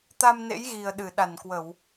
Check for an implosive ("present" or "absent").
present